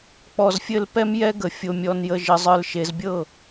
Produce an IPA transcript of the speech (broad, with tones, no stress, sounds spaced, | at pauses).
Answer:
k͡p ɔ˨ z fʲ ɘ˦˨ l p ɛ˦ m j ɛ˦ ɡ ə˨ fʲ o˨ mʲ ɔ˨ n j ə˨ ʒ ɘ˨ zˤ ə˞˨ l ʃ e˨ z bʲ ɤ˦˨